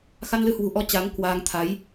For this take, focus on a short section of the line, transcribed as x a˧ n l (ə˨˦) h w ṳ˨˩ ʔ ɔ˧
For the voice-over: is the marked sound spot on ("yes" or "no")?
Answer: no